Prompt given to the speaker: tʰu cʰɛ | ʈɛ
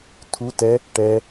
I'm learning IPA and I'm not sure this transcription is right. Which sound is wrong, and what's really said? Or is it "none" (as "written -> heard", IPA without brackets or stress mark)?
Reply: cʰ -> t